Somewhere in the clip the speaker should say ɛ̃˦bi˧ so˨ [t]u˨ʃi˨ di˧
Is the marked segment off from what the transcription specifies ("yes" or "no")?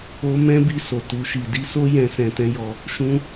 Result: no